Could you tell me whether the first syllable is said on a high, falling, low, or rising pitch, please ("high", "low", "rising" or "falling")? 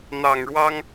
low